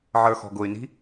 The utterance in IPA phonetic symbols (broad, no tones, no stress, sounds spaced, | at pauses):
ʕ ə˞ x ɔ̤ ɡ ʊ y̯ n i̤